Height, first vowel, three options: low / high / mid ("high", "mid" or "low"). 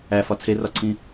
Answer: low